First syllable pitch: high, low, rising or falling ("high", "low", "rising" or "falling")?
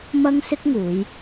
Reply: high